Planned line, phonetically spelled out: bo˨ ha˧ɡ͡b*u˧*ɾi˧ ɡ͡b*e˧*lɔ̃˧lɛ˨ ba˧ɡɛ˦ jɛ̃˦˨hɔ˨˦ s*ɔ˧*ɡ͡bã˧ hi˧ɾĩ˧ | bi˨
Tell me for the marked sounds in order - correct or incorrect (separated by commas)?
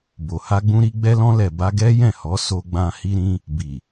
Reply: incorrect, incorrect, incorrect